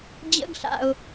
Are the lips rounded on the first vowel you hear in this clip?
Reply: no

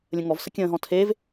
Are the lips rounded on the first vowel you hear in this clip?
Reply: no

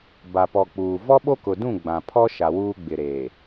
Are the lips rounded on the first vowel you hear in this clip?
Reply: no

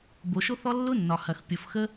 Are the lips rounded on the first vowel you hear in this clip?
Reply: yes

